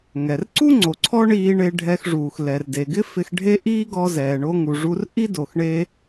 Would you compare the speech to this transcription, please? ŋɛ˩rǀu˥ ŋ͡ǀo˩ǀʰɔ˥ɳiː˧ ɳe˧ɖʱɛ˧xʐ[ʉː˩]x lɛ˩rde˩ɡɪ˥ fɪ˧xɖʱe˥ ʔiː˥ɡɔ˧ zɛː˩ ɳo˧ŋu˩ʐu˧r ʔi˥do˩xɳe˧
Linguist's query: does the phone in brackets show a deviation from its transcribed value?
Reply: yes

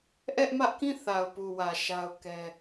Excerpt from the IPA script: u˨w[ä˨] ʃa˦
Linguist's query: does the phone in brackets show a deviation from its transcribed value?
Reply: no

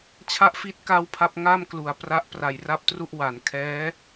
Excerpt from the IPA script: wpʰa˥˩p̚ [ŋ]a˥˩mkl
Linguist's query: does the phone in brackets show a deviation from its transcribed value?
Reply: no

